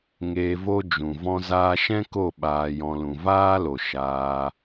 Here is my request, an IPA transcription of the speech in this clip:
ŋ eː˧ v o˦ d͡ʒ ũ˨ v ɔ̃˧ z aː˧ ʃ ɛ̃˦ k o˦˨ ɓ aː˧ j ɔ̃˧ l ũ˨ v aː˦ l o˨ ʃ aː˧

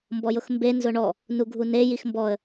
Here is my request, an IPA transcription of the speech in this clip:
m b ɔ j ʊ x m b e n z ʊ ɳ ɔ | n u ɡʱ u n e j i x m b ɔ ə̯

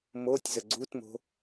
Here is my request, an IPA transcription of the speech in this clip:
m o tʲ z ə ɡ͡ǀ u t m o̤

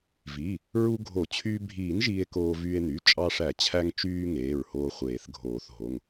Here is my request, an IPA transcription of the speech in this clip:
v i˩˧˩ | ɹ u˧ ɡʱ o˨˩˦ t͡ɕʰ yː˧ bʱ iː˨˩˦ n ʒ iː˧ e̯ k oː˧ v yː˧ e̯ n̪ y˩˧˩ t͡ʃʼ ɑ˧ ʂ æ˨˩˦ t͡ɕʰ æ˧ ŋ t͡ʃ yː˧ ŋ eː˩˧˩ ɹ h oː˧ χʷ eː˨˩˦ θ ɡʱ oː˨˩˦ θ ɦ o˩˧˩ ŋ

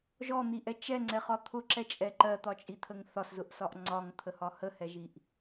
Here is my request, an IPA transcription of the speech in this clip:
ʒ ɔ n̪ i ʔ ɛ t͡ʃ ɛ ŋ͡ǀ ɛ χ ɒ t̪ʰ ʊ ǁ ɛ t͡ʃʼ ɛ ǃ ɜ t̪ ɒ t͡ʃʼ i t̪ʰ ə ŋ θ ɒ s z ʊ ʔ s ɒ ʔ ŋ͡ǀ ɒ ŋ t̪ʰ ə h ɒ h ə h ɛ ʒ i ʔ

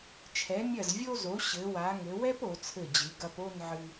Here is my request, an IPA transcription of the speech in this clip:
t͡ʃʰ ɛ˩˧ mʲ ɐ˧˩ z vʲ o˧ z o˩˧ ɕ ɘ˩˧ w a˩˧ ŋ ɘ˩˧ w ɛ˥ p o˩˧ t͡sʰ ɘ˧˩ d͡ʑ ɨ˩˧ ɡ ɐ˧ p o˥˧ n ʕ ɨ˧

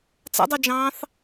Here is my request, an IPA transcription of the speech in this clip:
t͡s a̰ dˤ ɑ d͡ʒ ɑ̃ː θ

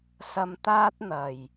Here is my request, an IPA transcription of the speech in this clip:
s ɐ˧ m t̪ aː˥ t̚ n̪ ɐ˨˩ j

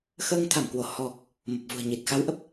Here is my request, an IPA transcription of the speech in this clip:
x əː˧ ŋ t̪ʰ a˧˩ m k w o˧˩ h ɔ˨˩ k̚ | m ə˨˩ p̚ v ṳ˨˩ ə̯ ɲ i˨˩ t̚ x a˨˦ w ʔ ə˨˩ p̚

